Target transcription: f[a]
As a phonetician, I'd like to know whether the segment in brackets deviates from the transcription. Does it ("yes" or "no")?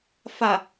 no